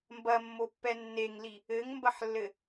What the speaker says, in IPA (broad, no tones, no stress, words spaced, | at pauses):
mbɐmːopːɛ nːeŋli | ɘŋmbɐħlːɘ